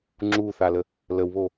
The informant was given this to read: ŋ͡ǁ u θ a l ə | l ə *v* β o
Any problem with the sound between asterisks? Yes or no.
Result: yes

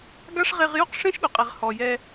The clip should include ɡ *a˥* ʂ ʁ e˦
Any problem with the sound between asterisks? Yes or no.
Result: no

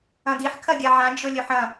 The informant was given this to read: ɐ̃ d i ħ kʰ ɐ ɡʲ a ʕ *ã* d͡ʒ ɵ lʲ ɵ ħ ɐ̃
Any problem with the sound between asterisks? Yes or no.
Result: no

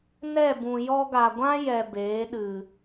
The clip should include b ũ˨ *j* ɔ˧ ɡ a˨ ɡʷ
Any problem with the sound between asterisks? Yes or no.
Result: no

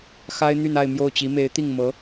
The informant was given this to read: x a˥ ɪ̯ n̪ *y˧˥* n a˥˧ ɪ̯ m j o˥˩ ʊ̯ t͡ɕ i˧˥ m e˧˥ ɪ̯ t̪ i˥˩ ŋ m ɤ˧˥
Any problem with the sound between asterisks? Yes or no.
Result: yes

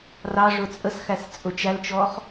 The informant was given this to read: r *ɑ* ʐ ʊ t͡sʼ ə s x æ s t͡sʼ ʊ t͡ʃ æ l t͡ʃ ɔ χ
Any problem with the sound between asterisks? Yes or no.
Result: no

